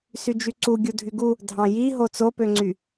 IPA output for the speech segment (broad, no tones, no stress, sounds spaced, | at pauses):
s y d͡ʒ y ǀ u ɡʲ u dʱ y ɡ u | dʱ ɑ̃ j i ɦ o t͡s o p ø ŋ͡ǀ y